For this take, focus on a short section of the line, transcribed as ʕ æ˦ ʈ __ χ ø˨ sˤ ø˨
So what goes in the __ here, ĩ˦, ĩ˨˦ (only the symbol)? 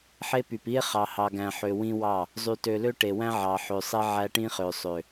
ĩ˦